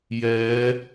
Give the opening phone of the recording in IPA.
j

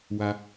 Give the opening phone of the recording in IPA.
w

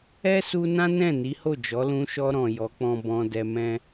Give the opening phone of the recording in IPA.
ɛ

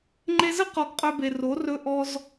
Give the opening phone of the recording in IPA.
ŋ͡ǃ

